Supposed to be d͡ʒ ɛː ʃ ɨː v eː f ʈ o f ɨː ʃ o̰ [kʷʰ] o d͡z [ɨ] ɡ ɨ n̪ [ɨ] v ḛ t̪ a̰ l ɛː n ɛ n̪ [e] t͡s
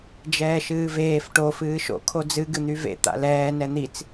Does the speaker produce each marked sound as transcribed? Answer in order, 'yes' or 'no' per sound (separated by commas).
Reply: no, yes, no, no